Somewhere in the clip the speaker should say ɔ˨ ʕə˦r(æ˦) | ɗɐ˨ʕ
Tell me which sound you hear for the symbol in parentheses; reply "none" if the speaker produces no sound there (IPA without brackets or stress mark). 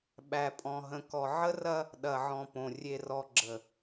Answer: ɐ˦